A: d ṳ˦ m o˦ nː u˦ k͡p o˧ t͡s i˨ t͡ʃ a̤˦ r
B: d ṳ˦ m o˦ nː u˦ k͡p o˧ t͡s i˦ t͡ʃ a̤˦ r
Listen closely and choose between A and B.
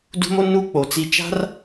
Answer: B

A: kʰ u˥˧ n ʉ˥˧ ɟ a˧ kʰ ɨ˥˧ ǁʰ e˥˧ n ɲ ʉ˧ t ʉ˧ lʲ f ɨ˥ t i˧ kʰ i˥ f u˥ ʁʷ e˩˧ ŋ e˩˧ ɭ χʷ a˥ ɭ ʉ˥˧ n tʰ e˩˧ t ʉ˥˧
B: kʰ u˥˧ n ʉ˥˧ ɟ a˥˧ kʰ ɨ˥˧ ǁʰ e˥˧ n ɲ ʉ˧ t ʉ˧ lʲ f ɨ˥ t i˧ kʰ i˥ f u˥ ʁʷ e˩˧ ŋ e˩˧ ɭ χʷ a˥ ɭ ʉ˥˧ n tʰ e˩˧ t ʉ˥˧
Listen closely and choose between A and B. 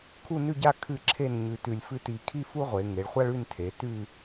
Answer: B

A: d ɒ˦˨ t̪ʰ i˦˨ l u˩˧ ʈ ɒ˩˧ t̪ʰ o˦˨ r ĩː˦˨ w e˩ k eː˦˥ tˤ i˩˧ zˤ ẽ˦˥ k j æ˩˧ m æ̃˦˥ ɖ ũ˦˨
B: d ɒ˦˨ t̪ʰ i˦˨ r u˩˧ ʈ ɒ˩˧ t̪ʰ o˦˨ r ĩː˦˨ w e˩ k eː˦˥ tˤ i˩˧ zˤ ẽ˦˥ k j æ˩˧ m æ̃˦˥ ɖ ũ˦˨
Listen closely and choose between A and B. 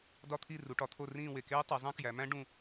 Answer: B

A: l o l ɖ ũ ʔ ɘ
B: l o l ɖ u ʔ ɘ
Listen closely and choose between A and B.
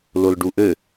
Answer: B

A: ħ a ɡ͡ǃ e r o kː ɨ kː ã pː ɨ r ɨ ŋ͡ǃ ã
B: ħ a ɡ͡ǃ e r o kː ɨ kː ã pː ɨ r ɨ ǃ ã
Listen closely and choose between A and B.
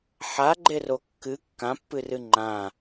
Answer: A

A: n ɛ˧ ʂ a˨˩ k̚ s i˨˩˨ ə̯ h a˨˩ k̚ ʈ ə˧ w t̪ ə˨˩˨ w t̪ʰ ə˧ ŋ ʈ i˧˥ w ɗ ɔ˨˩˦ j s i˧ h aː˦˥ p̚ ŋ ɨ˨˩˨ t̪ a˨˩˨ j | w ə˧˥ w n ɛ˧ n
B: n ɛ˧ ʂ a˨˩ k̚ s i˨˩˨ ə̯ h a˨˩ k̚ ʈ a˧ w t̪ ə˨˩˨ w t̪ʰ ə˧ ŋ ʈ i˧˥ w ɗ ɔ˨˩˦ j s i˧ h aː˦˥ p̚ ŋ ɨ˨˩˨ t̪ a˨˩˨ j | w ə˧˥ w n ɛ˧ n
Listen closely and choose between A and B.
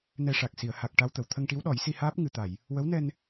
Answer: B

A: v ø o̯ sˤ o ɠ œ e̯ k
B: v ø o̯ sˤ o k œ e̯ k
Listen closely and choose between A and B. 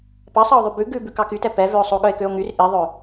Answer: A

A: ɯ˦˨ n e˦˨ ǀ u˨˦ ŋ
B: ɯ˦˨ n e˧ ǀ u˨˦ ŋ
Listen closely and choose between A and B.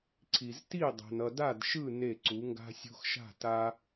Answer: A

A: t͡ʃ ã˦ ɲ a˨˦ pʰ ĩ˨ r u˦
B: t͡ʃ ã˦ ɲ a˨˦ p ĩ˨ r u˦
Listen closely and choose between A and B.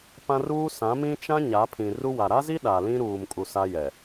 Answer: A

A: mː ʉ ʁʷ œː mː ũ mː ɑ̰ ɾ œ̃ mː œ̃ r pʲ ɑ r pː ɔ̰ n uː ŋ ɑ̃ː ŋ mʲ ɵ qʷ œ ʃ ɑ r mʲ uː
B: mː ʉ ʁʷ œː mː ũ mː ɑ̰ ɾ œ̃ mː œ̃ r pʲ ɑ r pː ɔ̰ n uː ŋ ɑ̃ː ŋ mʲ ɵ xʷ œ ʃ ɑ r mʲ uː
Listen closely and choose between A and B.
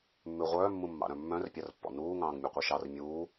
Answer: A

